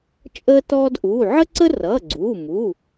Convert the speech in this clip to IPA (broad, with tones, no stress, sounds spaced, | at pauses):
t͡ʃʼ əː˥ t ɔː˥ d ʔ uː˩˧˩ ʕ ə˥ ǀ ə˥ r ʌː˩˧˩ ɡ͡ǀ uː˩˧˩ m u˩˧˩